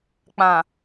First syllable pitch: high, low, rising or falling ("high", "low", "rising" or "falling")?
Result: low